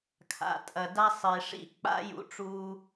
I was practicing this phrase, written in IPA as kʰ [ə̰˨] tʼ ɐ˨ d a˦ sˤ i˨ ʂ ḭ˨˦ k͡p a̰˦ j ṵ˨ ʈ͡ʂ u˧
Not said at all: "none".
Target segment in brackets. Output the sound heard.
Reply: a̰˨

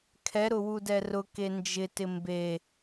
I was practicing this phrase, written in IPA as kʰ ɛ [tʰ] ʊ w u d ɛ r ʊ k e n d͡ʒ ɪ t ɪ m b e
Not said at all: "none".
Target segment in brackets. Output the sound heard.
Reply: ɾ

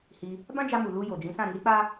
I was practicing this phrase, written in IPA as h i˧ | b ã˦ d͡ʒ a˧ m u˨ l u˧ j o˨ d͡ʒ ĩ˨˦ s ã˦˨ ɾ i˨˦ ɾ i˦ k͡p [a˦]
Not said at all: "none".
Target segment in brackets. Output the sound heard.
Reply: a˦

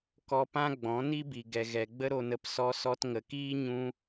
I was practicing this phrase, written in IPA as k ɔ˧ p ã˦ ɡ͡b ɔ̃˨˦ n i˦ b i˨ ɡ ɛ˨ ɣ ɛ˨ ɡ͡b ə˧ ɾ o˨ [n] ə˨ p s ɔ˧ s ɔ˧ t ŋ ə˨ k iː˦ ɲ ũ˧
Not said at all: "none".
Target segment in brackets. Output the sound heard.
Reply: n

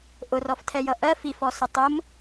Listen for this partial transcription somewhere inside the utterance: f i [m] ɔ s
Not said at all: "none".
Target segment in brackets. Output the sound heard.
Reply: f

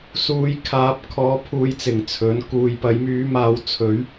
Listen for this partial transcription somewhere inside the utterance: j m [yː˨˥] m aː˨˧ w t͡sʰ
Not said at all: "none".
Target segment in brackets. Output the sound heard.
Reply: yː˨˥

